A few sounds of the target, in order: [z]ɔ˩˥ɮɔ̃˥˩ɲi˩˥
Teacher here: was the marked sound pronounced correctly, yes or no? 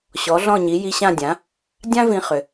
no